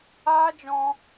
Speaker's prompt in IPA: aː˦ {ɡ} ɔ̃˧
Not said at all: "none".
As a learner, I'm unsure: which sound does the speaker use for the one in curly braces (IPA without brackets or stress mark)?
d͡ʒ